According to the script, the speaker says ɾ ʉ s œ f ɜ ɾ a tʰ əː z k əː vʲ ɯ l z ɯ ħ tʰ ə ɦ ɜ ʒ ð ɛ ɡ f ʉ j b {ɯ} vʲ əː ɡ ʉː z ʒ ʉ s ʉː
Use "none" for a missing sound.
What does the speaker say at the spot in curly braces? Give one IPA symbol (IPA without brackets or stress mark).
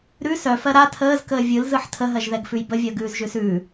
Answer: ə